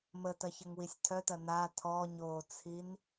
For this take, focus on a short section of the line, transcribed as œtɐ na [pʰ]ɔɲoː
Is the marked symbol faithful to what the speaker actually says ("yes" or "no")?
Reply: no